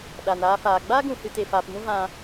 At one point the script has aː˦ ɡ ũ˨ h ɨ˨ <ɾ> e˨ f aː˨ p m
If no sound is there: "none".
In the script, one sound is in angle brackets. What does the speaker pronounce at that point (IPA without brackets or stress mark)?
t